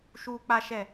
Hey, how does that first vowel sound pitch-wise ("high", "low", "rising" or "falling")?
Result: low